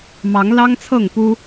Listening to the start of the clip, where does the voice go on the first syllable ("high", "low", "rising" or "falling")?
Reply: rising